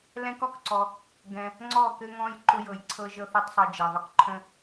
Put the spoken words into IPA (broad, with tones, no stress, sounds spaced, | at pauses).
l ɛ̃˦ k ɔ˧ k ǀ ɔ˧ | ɡ ɛ̃˧ | ŋ͡ǀ ɔ˦˨ k ɘ˦ ŋ ɔ̃˦ j ǃ ʊ˧ j ɤ˨ j ǀʰ ɤ˧ ʒ ɤ˦ θ ɘ˦ tˤ sˤ ɤ˧ d͡ʒ ɛ˨ ðˤ ʊ˦ k ǃʰ ə̃˦